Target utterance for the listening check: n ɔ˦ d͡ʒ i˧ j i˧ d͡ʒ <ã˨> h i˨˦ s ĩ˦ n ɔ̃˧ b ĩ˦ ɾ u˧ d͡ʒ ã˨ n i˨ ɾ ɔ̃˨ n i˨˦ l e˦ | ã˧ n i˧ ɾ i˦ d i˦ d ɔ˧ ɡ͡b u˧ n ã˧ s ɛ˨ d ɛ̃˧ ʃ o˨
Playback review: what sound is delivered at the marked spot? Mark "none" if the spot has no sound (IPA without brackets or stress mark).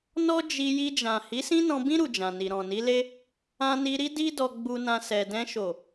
ã˨